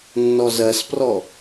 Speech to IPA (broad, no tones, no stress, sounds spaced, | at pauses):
nː ɔ z ɜ s p r ɔ